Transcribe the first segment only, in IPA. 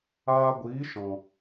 aː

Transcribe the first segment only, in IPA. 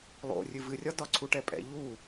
lˠ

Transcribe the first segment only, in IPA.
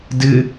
d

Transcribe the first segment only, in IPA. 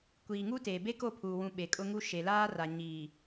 kʷ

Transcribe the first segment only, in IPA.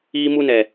iː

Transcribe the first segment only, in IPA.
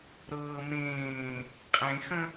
ɾ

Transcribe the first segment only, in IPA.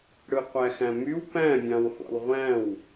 ɽ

